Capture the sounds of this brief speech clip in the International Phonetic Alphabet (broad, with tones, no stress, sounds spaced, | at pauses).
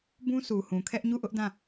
b ũ˦ sʰ u˨ h ũ˨ kʰ ɛ˦ ʔ ɲ u˦˨ ʔ ʊ˦ ʔ d ã˦˨